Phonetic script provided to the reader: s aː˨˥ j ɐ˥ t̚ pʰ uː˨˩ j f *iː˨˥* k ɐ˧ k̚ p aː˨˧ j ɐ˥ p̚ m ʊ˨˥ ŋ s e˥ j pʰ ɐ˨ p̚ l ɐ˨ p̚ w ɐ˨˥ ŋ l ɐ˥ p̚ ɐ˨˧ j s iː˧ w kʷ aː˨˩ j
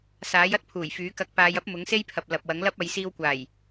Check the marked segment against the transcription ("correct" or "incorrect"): incorrect